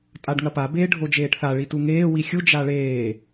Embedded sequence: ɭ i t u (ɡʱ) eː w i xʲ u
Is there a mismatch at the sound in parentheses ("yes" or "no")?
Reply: yes